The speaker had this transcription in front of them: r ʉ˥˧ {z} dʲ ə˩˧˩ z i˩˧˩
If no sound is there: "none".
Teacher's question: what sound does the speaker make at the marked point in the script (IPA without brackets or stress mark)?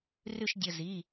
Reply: ʃ